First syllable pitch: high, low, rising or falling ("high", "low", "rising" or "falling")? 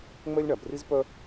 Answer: high